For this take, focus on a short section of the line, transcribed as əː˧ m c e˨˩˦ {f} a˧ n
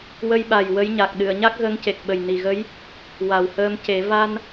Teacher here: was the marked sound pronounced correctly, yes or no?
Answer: no